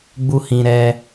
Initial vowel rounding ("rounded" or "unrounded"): rounded